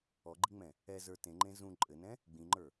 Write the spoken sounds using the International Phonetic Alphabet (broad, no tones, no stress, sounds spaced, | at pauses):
ɔ ɡ͡ǃ i ŋ͡m ɛ̃ | ɛ z ə˞ t ẽ ŋ͡ǃ ẽ z ũ ǃʼ ɘ n ɛ̃ | ɡ͡b ĩ ŋ͡ǃ ə˞